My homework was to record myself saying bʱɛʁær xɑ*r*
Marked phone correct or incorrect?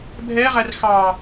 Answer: incorrect